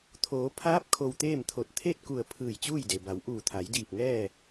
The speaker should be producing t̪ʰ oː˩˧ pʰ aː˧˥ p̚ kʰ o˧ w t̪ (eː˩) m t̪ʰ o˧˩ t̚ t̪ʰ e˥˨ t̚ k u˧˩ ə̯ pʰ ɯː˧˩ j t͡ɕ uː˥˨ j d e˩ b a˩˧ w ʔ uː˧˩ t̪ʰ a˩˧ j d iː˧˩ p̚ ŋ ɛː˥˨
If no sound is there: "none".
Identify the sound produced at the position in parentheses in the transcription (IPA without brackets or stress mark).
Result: eː˥˨